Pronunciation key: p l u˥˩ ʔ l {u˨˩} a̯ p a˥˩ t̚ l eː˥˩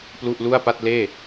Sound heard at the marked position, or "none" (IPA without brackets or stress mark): u˥˩